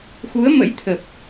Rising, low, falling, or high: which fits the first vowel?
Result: rising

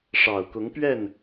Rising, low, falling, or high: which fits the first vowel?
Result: low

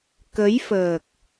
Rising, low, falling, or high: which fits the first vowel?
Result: rising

